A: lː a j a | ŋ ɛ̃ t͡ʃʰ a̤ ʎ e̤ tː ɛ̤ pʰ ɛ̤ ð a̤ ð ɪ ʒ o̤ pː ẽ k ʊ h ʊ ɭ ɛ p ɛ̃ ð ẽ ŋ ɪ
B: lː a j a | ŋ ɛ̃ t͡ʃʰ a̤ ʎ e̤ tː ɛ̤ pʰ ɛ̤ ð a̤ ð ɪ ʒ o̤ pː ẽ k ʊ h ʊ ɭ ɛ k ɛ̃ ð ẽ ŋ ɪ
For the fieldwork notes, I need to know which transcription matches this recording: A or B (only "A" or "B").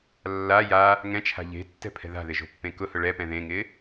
A